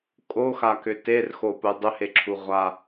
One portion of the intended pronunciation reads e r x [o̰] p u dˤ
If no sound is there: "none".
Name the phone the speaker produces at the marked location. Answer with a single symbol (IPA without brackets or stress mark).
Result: o